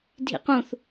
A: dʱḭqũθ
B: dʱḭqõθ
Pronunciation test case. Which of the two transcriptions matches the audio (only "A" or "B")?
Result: A